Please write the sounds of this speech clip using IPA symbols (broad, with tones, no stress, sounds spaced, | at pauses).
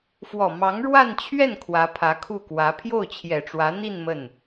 f w ɔ˨˩ m ɑ˧˥ ŋ ɻ w a˥˧ n t͡ɕʰ ɥ ɛ˥˩ n kʰ w ä˧˥ pʰ ä˧˥ kʰ u˥˩ k w ä˧˥ pʰ j o˥˩ ʊ̯ t͡ɕʰ j ɛ˨˩ ʈ͡ʂ w ä˧˥ n̪ i˥˧ n m ə˥˩ n